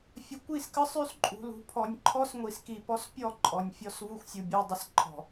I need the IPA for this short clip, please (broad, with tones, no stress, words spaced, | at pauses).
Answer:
fʲə˨ kʷi˦˨skə˦ sˤʉ˦sǃʼṳ˨ lṳ˨ pʰɔ˨nʲǃʰɔ˦sŋʷi˨ski˨ pɔ˦s pʲɔ˦˨ ǃʼɔ˨nʲfʲɔ˦svu˦xʷsʲu˨ bʲʉ˨ dˤə˨sǃʰɔ̤˨